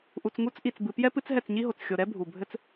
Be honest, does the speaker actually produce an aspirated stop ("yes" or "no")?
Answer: no